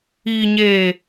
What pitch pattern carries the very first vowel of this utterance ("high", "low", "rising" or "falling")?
low